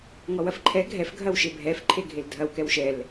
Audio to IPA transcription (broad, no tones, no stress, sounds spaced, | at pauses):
ŋ ɔ w ɐ f ǃʰ ɛ ɡʱ ɛ f ɡʱ ɐ w ʃ e bʱ ɛ f ǃʰ e ɡʱ e l dʱ ɐ w k ɛ w ʃ ɛ l